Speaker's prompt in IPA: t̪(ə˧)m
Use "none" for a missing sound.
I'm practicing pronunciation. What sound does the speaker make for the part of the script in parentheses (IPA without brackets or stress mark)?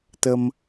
ə˧